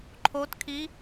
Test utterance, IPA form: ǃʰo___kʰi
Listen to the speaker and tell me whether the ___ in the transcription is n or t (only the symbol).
t